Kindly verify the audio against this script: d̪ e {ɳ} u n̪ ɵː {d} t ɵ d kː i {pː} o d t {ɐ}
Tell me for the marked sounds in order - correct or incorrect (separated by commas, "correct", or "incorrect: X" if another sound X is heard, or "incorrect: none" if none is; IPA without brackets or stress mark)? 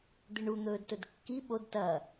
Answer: correct, correct, incorrect: ɓ, correct